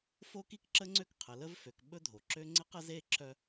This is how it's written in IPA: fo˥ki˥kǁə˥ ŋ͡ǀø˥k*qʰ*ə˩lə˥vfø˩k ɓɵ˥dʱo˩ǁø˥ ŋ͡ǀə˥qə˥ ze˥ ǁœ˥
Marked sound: correct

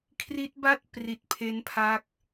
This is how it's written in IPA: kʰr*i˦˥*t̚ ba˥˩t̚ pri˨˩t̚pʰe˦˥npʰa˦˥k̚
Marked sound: correct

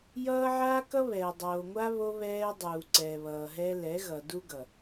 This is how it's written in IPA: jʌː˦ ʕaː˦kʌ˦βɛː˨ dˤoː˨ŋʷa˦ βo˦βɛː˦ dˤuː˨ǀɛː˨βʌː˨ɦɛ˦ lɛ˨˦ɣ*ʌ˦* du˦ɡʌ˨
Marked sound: incorrect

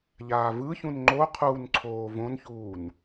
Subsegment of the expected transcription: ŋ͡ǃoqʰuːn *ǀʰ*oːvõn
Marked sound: correct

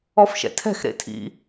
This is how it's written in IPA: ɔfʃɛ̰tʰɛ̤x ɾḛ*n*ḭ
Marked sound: incorrect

